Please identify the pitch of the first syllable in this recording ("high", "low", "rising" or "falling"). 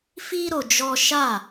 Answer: high